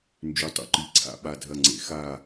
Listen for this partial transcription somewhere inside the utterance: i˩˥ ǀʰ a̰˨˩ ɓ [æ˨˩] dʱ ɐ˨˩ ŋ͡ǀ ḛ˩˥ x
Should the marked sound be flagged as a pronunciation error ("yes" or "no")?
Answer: yes